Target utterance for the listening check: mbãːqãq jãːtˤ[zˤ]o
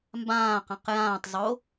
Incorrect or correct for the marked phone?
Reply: correct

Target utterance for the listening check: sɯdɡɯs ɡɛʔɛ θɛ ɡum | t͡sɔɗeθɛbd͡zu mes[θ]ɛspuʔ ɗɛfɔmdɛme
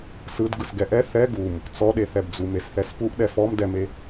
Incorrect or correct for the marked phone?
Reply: correct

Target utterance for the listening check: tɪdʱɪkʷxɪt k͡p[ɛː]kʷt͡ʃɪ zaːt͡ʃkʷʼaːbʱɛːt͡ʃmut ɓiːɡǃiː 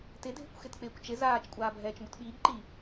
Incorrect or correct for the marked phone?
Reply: incorrect: ɪː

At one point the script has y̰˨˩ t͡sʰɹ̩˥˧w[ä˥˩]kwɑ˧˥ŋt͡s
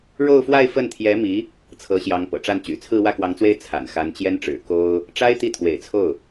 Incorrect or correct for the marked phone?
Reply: correct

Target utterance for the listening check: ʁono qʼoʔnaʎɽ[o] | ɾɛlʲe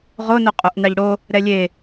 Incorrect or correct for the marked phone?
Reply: correct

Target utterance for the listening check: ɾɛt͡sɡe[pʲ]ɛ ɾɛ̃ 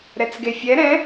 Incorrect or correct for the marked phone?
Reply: incorrect: fʲ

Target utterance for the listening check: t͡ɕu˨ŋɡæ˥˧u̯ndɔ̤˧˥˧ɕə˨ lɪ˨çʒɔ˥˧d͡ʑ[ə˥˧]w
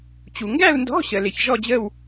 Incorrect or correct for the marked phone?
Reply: correct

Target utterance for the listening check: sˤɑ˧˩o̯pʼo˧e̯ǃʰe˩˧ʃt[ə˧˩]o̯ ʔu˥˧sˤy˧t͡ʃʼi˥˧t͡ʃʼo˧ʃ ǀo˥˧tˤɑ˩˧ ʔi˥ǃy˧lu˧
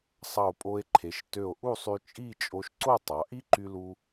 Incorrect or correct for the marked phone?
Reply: incorrect: ø˧˩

